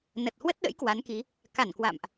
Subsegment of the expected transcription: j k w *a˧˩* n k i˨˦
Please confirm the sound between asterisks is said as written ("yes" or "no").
no